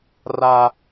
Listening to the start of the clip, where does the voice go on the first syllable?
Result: high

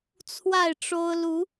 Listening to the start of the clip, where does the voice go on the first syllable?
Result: falling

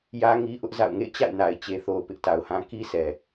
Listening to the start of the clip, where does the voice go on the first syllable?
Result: high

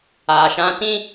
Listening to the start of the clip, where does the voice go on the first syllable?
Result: low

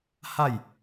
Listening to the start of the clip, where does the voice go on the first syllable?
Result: falling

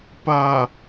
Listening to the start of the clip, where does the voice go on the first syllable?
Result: low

